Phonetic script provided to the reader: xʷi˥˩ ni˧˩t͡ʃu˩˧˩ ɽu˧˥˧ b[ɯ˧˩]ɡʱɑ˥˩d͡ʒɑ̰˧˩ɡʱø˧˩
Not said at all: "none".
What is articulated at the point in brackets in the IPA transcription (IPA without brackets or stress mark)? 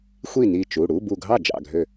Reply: u˧˩